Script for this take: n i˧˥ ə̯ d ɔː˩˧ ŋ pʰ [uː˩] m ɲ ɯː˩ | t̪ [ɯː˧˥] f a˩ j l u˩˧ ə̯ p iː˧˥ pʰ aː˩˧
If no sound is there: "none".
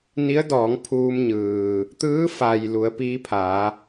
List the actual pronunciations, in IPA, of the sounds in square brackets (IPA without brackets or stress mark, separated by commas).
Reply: uː˧, ɯː˧˥